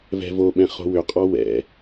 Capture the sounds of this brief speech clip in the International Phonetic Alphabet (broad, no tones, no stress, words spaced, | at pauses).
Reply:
vɛ̤voɓɛ̃ χo̤wʏqʼɔ wɛ̰